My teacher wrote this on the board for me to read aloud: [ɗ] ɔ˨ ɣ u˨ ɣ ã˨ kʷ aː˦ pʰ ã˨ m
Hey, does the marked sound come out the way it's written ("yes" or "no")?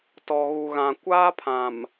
no